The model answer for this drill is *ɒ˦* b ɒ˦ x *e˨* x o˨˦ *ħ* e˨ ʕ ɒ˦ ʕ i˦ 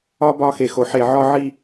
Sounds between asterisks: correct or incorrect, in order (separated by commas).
correct, correct, correct